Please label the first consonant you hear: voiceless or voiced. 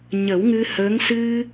voiced